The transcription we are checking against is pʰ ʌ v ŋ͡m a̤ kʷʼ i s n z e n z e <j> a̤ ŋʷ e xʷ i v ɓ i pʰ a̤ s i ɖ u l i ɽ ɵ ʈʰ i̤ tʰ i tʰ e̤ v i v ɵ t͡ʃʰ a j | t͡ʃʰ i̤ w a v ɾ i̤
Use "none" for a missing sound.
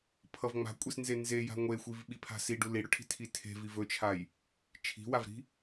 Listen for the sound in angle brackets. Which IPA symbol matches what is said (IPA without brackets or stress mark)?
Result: j